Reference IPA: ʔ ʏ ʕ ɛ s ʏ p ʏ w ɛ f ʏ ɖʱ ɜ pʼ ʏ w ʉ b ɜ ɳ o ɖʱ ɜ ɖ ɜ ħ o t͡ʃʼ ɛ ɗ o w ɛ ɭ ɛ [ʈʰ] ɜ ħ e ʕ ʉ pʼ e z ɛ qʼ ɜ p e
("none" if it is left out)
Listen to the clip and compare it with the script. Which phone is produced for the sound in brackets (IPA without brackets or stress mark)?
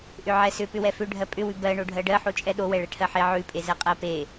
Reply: ʈʰ